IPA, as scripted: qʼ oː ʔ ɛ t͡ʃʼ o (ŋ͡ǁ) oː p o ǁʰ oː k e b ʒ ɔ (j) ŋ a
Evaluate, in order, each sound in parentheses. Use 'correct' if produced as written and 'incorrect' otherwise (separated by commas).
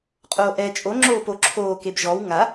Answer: correct, incorrect